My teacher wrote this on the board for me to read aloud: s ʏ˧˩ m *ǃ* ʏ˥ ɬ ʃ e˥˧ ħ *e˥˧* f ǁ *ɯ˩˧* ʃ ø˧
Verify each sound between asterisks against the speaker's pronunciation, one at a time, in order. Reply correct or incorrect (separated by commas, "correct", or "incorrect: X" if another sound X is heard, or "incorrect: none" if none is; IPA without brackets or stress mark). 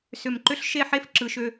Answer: correct, incorrect: e˥, correct